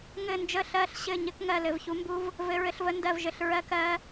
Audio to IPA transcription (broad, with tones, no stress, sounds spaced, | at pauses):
ŋ ɘ˦˨ n d͡ʒ ə˦˨ ɬ ɜ˦˨ ɬ ɕ ɘ˦˨ ɲ ɘ˦˥ k ŋ ɜ˦˨ l ɘ˦˨ v ç u˦˥ m b u˦˥ v | v ɘ˦˥ ɹ ɘ˦˥ ɬ v ə˦˥ n d ɜ˦˨ v ʒ ɘ˦˨ ɬ ɹ ɜ˦˥ k ɜ˦˥